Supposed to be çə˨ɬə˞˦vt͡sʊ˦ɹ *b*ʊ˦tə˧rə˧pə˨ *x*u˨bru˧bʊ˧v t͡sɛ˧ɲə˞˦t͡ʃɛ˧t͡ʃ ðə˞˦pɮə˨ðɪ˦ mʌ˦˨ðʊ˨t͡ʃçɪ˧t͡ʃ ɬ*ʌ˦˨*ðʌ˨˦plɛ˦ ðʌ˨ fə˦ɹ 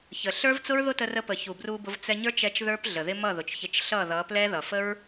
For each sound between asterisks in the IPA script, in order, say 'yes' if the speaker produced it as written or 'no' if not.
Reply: no, no, yes

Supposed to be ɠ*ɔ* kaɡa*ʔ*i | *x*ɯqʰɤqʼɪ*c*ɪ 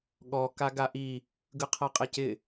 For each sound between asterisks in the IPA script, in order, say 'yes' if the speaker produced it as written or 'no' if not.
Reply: yes, yes, no, yes

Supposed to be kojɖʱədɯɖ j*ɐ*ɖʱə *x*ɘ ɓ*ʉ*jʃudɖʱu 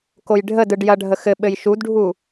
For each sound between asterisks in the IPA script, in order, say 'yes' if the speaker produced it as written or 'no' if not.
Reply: yes, yes, no

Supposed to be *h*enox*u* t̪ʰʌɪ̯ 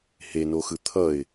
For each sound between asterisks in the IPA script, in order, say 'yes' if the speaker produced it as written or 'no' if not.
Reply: yes, no

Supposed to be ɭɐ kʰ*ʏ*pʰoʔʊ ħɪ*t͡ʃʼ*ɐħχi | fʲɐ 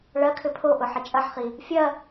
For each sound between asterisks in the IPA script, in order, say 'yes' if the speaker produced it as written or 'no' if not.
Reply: yes, yes

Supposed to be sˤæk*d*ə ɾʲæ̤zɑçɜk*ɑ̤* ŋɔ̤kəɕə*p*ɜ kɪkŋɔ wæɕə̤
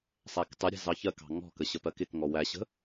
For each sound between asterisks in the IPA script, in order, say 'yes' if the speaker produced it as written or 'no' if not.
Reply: no, yes, yes

